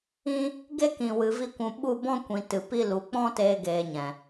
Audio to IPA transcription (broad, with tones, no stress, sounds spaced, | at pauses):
ĩ˦ | ɡ e˦ k ĩ˨ w ɨ˨ v i˧ kʷ ũ˨ ɓ u˦˨ b ɔ̃˦ kʷ ĩ˨ t ɨ˨ p i˦ l u˨ k͡p ɔ̃˦ t eː˧ ɡ eː˨ ɲ ɛ̃˨